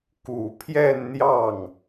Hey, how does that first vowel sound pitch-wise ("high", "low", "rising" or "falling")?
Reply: low